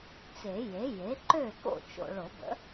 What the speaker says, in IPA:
t͡se˨˩˦je˩˥ je˩˥ǃø˥˩ ko̰˥˩t͡ʃo̰˨ɭo˨˩˦ bə̰˩˥

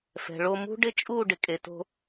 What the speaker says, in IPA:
fɛ̤˨ɭo˧ mṳ˦ɖɪ˦t͡ʃʼu˦˨ɖɪ˨ kʼe˨to̤˧

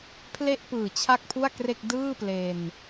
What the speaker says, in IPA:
pʰle˥˩ʔpɯː˨˩ t͡ɕʰa˥˩k̚pʰu˥˩a̯kre˥˩k̚ dɯː˥˩ple˧n

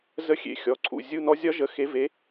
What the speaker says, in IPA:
zə˧˥xʲḛ˩˧˩ xʲɔ˩˧˩ǀʰṵ˩˧˩ zʲu˧˥˧nɔ˧˥ zʲɒ˧˥ʒə˩˥ xe˩˧ve˩˧

